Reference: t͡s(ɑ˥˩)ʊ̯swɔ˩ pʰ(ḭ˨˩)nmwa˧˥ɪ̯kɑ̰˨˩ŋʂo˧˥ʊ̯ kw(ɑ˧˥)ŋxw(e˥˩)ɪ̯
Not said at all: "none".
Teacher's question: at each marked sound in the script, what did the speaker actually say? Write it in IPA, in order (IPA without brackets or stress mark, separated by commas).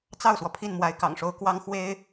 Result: ɑ˥˩, i˥˩, ɑ˥, e˥